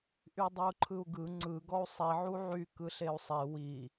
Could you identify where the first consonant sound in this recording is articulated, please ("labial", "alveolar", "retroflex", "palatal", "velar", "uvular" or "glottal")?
glottal